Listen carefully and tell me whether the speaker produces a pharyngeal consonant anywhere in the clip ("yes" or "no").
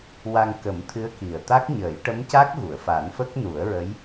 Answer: no